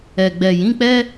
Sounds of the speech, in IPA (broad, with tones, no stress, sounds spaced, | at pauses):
ɛ˨ ɡ͡b ɛ˨ j ĩ˨˦ k͡p ɛ˦